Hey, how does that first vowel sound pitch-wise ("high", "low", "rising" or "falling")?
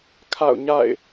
falling